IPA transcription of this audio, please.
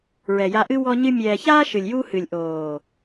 ɹɛ˨ja˧ʔɨ˦ wɔ˦ɲɨ˦ mʲɛː˨çaː˦ ʃɨ˨lʲjuː˦ hɨ˨lʲʔoː˨

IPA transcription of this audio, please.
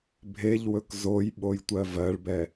bʱeʎwɵk zoj ɓojtʷɜvɜɭbɛ

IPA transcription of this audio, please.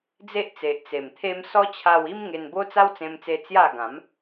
d͡ze˦ʔt͡se˨ʔ t͡se˨˩mt̪ʰe˦m sɔ˦t͡ɕʰa˧wi˦m ŋe˧nbo˦t͡sa˦w t͡sẽ˧mt͡se˧ t͡sja˥˧ ɡã˨˦m

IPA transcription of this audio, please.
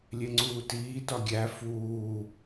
lʲeŋ͡ǀuːtiːtɒ ɡʲæ fuː

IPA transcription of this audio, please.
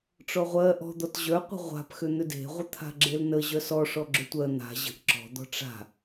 ʈ͡ʂɔʁʷɜ ʔɔ̤d̪ɔt ʑœqʷə̤ ʁʷa̤p xʏn̪ʏde̤ʁʷə t̪ʰa̤ɡ͡ǁelnə ʑœsɔʂɔ ɡ͡ǁʏtʷɜ n̪a̤ ʑə̤ʔ ǁɔ̤d̪ɔ̤ ʈ͡ʂa̤

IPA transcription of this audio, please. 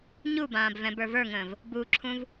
ɲubãːb vɛ̃bə˞və˞ŋə̃ːv | buǁʰũv

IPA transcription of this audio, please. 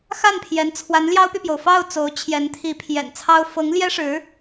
xa˥˩npʰjɛ˧˥n t͡sʰwa˧˥nljɑ˥ʊ̯py˨pjo˩ʊ̯ fɑ˥˩ʊ̯ t͡so˧˥ʊ̯t͡ɕʰjɛ˧˥nt̪ʰi˧˥ pʰjɛ̰˨˩nt͡sʰɑ˥ʊ̯ fɤ˧˥ŋ ljɛ˥ʂɻ̩˧˥

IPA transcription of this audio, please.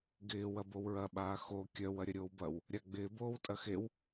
ɡɪː wɐbowɹɐ ɓaːxo kʲœw ɐɾʲɐɾʲoːwbɐw | ɾʲaɡ͡bɪː boːwtʼɐxew

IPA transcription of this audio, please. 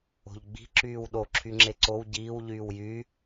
o̤ʎɡ͡bi̤ ǁyːwɗo ǁʰyŋ͡ǁeǀow ɟiːw ʎyːwjy

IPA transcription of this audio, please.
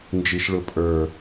nd͡ʒiʃɭʊpʼə˞

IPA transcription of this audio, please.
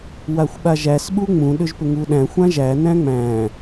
waxʷɓaʒæs ɓuŋ͡mũ ɗʏʒpʏŋuɗæ̃ xʷãʒæ næ̃ŋ͡mæ̃

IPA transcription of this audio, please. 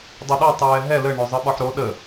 dˤʊɗɒ tˤɛːɦɛ lə ɳɵzˤɯɓɒħɾo ɗə

